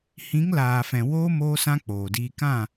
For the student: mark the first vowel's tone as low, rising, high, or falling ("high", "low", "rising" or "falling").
rising